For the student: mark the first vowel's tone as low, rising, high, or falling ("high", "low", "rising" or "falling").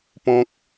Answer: high